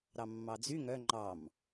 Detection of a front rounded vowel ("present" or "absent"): present